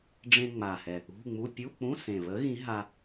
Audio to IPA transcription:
ɖ͡ʐẽ˧ŋ͡ma˨˩hɛ˨˩ | ṳ˧˥˧ŋ͡mu˧˥˧ pʲu˧˥˧k͡pũ˧˥˧sẽ˨˩βə˨˥ ɣĩ˨˥ɦa˧

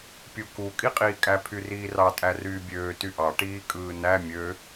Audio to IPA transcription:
pʲuku kʼiqʼiːkʼæ pʰyriːrɑ tʼæryːbʲøː tyʔɑ ʈiːkʼɯːnæ mʲø

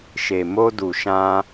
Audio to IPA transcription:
ʃe˨mo˧du˨ ʃã˧

